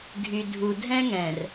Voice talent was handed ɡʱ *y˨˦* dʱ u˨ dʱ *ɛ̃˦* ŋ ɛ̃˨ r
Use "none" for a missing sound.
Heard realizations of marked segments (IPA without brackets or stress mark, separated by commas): y˨, ɛ̃˦